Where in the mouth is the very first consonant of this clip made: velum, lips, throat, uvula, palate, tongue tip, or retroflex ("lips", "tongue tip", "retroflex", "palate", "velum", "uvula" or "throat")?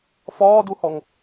lips